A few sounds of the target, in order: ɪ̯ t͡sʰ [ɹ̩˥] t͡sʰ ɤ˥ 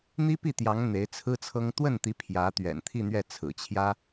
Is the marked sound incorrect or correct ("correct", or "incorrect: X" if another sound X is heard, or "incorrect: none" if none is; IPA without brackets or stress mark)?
correct